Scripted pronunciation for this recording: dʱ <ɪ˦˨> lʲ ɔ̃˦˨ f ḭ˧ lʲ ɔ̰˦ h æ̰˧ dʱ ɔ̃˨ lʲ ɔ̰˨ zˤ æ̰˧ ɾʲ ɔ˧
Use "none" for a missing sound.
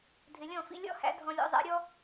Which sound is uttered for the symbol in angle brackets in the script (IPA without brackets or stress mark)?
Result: ɪ˨